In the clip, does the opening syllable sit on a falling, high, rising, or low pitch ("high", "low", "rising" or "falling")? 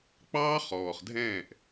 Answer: high